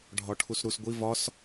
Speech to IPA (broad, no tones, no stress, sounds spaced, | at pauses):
ɖʱ ɒ ʈʰ u s ɾ u s ɡʷ i v ɒ s